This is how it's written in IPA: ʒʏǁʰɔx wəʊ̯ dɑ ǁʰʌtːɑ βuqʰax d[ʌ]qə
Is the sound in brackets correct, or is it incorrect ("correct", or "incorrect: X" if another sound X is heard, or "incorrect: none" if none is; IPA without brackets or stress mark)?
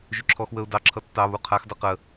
correct